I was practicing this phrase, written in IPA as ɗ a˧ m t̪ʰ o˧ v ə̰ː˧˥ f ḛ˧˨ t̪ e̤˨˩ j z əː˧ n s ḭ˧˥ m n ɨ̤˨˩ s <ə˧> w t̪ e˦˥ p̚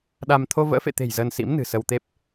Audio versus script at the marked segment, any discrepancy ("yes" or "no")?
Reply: no